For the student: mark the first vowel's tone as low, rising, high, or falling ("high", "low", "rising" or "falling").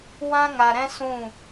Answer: high